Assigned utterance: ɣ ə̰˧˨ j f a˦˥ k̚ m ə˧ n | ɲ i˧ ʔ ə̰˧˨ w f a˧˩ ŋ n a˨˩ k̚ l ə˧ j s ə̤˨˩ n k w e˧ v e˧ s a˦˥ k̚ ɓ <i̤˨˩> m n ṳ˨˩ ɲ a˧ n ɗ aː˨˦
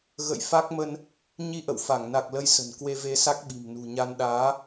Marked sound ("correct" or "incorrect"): correct